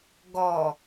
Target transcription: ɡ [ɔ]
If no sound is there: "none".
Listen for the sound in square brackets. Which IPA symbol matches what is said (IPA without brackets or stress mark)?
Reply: ɔ